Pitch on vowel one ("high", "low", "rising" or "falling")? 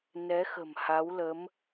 rising